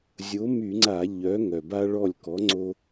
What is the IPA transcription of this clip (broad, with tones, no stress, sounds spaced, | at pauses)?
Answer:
zʲ o˨˥ m y˧˩˧ ŋ͡ǀ a˧˩˧ ʎ œ˨˥ ŋ œ˨˩ b a˦ ɭ ɔ˦˨ lʲ k ɔ˨˥ ŋ͡ǀ o˦